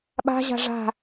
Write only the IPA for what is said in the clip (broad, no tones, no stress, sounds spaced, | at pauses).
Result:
ɓ a̤ ʑ a̤ ʐ a̤